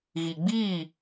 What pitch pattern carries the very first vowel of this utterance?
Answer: low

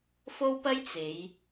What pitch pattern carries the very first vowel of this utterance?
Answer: high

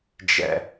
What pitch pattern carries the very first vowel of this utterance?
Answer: high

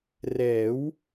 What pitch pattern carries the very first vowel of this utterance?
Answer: rising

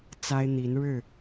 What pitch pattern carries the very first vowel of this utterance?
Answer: high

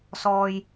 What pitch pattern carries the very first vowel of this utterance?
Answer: low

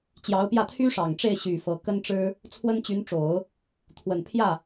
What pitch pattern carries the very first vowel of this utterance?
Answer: rising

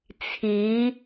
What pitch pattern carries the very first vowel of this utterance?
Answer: rising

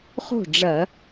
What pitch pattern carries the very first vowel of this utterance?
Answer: falling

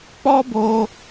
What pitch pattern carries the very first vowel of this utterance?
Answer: high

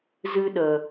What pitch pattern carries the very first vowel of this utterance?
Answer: high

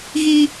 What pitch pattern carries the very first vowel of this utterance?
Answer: high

